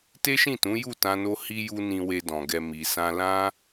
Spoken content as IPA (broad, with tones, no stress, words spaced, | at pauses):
te˦ʃĩ˦˨tũ˨˦ ju˦˨tã˧no˧ hi˧ju˧ nĩ˧we˧dɔ̃˨ɡɛ˧ mi˧sã˦ lã˦